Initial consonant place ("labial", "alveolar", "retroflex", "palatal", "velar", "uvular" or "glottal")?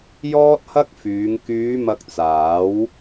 palatal